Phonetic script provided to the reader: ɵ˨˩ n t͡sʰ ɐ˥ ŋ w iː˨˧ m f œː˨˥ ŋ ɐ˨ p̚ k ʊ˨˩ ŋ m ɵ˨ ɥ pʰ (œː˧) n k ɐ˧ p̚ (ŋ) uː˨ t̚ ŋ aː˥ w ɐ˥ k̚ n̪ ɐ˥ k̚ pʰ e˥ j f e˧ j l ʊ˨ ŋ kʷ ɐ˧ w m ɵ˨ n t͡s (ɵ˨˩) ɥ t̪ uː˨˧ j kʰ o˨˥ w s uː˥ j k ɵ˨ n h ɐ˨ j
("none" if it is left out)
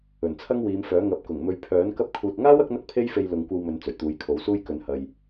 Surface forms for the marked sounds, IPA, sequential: œː˨˥, kʰ, ɵ˨˩

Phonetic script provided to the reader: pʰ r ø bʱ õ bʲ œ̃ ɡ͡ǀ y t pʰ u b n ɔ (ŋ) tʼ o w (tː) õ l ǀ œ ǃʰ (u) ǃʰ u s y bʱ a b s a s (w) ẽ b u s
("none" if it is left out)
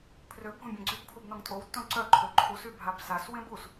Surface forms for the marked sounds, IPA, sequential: ŋ, tː, ø, w

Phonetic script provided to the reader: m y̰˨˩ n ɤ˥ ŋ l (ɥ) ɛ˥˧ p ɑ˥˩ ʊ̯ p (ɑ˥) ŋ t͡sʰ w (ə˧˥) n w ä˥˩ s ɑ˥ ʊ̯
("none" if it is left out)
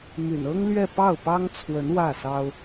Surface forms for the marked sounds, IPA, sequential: ɥ, ɑ˥, ə˧˥

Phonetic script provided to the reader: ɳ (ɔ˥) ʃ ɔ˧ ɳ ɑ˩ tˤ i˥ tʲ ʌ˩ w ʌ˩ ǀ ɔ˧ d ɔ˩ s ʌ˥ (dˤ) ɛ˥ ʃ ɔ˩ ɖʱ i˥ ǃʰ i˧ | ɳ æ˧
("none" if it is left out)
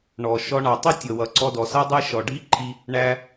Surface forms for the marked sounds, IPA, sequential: ɔ˩, dˤ

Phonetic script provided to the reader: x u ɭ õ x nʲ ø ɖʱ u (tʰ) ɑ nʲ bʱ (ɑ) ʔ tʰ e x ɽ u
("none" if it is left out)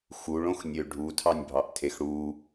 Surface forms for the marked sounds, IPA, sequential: tʰ, ɑ

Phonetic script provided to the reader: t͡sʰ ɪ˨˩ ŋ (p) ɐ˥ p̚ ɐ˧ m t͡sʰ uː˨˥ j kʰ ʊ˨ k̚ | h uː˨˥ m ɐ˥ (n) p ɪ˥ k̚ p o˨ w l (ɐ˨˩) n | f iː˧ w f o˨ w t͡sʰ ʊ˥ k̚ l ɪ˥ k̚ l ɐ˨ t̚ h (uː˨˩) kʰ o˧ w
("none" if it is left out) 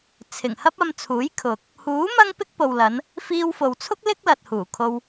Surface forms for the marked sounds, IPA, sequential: h, ŋ, ɐ˨˧, uː˨˩

